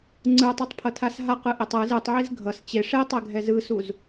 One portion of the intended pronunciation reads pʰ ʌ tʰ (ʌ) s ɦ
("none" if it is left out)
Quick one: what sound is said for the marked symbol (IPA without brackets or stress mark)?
a